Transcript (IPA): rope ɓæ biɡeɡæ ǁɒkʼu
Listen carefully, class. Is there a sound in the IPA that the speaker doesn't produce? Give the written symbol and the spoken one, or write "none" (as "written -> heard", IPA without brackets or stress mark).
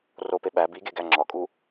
ǁ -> ŋ͡ǁ